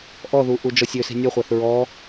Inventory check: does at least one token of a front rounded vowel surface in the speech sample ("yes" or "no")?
yes